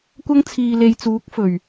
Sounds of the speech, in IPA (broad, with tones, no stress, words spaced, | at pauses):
kʷɐ˥ŋ t͡sʰiː˨le˨jt͡suː˨˥k̚ fɵ˨˩ɥ